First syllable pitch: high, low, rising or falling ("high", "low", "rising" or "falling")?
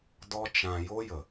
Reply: high